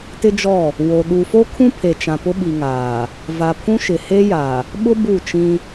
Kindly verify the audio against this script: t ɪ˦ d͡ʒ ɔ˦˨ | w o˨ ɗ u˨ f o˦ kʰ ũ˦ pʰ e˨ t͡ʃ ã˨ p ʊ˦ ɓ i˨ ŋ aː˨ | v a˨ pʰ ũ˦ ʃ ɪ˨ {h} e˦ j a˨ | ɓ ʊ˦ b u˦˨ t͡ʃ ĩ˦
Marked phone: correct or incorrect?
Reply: correct